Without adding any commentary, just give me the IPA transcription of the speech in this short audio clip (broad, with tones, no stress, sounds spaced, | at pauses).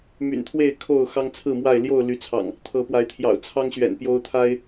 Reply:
m y̰˨˩ n t̪ʰ w e˥˨ ɪ̯ kʰ o˥˨ ʊ̯ x ɑ˦ ŋ t͡sʰ ɹ̩˥˨ m w a˥˨ ɪ̯ l j o˥˨ ʊ̯ l y˨˦ t͡sʰ ɑ̰˨˩ ŋ | t̪ʰ ɤ˨˦ p w a˨˦ ɪ̯ t̪ʰ j ɑ̰˨˩ ʊ̯ t͡sʰ ɑ˦ ŋ ɕ ɥ ɛ̰˨˩ n p j o˦ ʊ̯ t̪ʰ a˦ ɪ̯